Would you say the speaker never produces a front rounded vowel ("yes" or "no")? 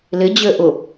no